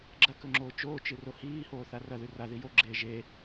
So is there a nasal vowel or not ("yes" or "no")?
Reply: no